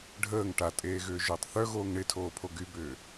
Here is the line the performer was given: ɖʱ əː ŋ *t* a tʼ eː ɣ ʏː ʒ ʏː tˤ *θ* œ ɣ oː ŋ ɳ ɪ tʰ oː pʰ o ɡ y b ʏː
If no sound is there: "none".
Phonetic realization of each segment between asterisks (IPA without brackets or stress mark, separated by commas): ʈ, θ